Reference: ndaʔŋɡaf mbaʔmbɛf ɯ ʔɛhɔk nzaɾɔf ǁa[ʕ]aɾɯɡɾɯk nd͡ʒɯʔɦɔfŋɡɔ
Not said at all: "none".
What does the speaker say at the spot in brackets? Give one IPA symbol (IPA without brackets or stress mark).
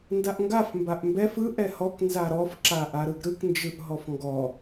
ʔ